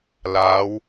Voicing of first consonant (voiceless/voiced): voiced